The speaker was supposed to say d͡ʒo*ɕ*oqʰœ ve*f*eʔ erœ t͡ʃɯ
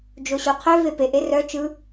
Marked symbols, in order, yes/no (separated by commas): yes, no